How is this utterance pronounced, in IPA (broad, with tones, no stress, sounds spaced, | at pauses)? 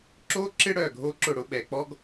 ǁ o˦ ǁ ɪ˦ ɽ œ˦˨ ɡʱ o˦ ǁ ʊ˦˨ ɽ ʊ˦ ɓ ɛ˨ k͡p ɔ˦ ɡ